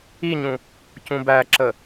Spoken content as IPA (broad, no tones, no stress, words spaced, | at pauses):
iɲũ | cũbæǁə